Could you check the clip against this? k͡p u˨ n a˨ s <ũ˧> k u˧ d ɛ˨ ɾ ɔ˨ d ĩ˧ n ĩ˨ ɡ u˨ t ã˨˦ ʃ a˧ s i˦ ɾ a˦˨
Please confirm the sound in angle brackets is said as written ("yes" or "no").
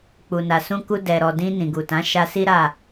yes